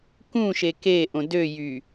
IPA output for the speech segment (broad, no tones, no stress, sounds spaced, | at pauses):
k ũ ʃ e k e ʔ õ d ø j y